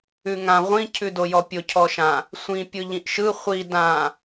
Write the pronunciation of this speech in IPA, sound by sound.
ʉ ŋ ã ʁʷ ĩ cʰ ʉ d o j ɔ pʲ ʊ cʰ ɔ ʃ ã | sʷ ĩ pʲ ɯ ʎ ĩ ʔ ʃ ɯ χʷ i d ã

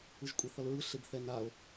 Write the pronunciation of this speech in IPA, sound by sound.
ɯ ʒ kʷʼ e θ ʌ l ɹ ɯ ɬ e b θ ɛ n a o̯

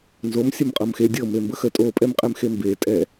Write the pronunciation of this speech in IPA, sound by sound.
n z o m sʲ ɤ m qʼ ɤ m x e dʲ ɤ m e m b ə x ə tʼ o pʼ ɛ m qʼ ɛ m x e m b e tʼ ɛ

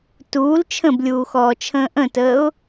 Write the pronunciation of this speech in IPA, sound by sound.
t uː l t͡ʃʰ ə̃ b lʲ uː x ɔː t͡ʃʰ ə̃ː ʔ ə̃ t əː ʊ̯

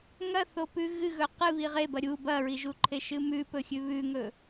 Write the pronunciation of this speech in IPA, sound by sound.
ŋ ɐ θ o p ʉ ɣ ɨ ɣ ɵ q ɨ β i ʁ e b ɐ ɾʲ u b ɐ ɹ i ʒ u ǃʰ e ʃ ɨ m ʉ p ɵ xʲ ʉ β ʉ ŋ ɵ

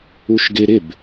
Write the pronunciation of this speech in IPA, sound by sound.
u ʃ ɡ ɪ ɾ ɪ b

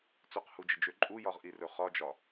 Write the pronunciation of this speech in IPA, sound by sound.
t͡s ɵ q h u d͡ʒ ə d͡ʒ ø ǃʼ u j ɒ ʁ ʔ i r ɵ χ ɒ d͡ʒ ɒ

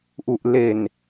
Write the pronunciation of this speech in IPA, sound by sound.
ʔ u˨˩ ʔ l e˨˩ n

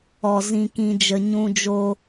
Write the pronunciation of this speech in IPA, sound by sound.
ɔ˨ z ĩ˨ k ĩ˨ d͡ʒ ə˨ ɲ ũ˧ d͡ʒ o˧

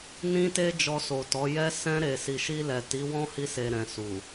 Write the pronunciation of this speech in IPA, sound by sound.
n ĩ˧ t e˧ d͡ʒ ɔ˧ s o˨ t ɔ˨˦ j ɛ˧ s ɛ̃˧ ɾ e˨ s i˨ ʃ i˧ l ɛ˨ t i˨˦ w ɔ̃˦ h i˧ s e˨ ɾ ɛ̃˨ s u˨

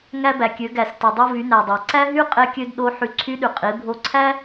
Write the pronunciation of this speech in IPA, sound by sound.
ŋ æ˧ b æ˩ kʲ ø˩˧ ɡ æ˩ s t i˩ dˤ o˧ v y˩˧ n æ˩ dˤ æ˩ ǀ æ˥ ɦ y˥ qʼ e˧ kʲ ø˧ d ɗ o˧˥ ħ y˧ ǀʰ y˧˥ ɗ y˩ qʼ i˩˧ bʱ o˧ ǀʰ æ˥

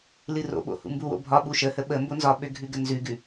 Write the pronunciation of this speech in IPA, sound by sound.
l ɨ r o̰ ɓ o̰ h ṵ m b u w o̰ bʱ ɒ ɓ u ʃ ə h ə ɓ ə m b o n z ɒ ɓ ø ɡʱ ʉ ɡ ə n z ʉ ɡ ʉ

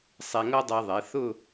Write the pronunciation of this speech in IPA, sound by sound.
sˤ ɛ˧ ŋ ʌ˥ dˤ ɛ˧ ðˤ ɛ˩˧ θ ʊ˥˧

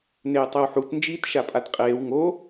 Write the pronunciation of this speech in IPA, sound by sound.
n eː tˤ e w ħ u t n d͡ʒ iː t ʃ a pʼ a t qʼ eː w ŋ o

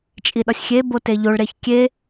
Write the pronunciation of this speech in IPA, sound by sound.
t͡ʃʼ i ɗ ɒ sʲ xʲ e b o t e ʎ o ɭ ɾ e ç kʲ e

